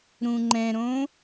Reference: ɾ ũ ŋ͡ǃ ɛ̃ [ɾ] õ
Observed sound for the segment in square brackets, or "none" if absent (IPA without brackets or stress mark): ɾ